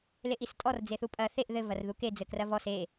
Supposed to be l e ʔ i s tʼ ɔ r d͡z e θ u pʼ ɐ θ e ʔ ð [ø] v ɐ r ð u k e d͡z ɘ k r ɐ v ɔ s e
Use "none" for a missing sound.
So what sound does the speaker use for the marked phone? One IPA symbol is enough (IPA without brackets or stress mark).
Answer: ɘ